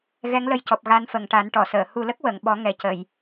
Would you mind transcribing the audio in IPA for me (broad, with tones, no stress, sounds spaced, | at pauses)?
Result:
ɣ ɛ˧˥ ŋ l ə˧ j c ɔ˨˩ p̚ ɣ a˧ n f ə˨˩ ŋ ʈ a˨˩˦ n ʈ ɔ˨˩˨ s əː˨˩˨ h u˨˩ l ə˦˥ k̚ w ə˨˩˨ ŋ ɓ ɔ˨˩˦ ŋ ɛ˨˩ c ə˨˩˨ j